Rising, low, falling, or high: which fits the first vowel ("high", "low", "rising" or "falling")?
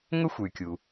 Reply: high